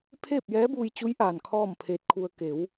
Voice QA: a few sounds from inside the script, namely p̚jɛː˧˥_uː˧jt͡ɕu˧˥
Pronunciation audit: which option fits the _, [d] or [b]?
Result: b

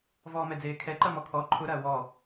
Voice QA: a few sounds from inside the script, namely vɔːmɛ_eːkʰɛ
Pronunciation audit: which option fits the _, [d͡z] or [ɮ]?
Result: d͡z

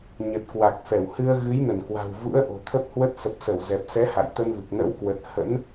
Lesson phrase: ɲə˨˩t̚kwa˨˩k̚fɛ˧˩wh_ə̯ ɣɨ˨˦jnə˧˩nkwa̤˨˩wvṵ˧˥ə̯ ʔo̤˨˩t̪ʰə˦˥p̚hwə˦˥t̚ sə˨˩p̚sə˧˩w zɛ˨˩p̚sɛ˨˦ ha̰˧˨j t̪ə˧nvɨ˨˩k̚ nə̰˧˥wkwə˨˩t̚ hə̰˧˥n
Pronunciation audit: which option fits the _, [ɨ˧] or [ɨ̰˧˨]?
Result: ɨ˧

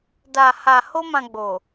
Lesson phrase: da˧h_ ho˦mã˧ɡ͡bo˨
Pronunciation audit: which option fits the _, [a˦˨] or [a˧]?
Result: a˧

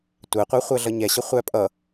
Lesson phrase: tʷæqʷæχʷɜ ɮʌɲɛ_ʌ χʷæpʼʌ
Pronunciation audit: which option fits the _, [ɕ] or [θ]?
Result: ɕ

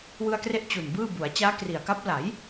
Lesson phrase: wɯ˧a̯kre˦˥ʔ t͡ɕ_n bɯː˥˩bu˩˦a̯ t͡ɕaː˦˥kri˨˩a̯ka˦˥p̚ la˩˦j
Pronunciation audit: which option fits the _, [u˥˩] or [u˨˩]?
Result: u˨˩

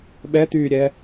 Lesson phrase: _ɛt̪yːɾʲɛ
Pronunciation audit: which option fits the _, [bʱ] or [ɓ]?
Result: ɓ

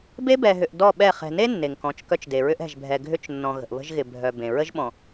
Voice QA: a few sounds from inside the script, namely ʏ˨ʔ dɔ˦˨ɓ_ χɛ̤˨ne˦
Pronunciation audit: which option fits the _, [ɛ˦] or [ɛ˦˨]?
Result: ɛ˦˨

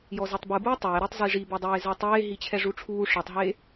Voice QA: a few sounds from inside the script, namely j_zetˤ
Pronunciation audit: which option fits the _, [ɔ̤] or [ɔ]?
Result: ɔ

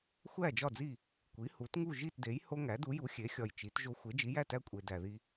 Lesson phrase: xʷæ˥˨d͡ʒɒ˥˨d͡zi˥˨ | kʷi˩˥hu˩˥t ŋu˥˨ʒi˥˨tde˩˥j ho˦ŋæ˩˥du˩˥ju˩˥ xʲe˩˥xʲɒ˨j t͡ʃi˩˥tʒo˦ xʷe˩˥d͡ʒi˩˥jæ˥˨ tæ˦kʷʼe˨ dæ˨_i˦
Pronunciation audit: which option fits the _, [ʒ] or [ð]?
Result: ð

